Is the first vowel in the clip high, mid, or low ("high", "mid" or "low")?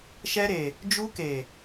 mid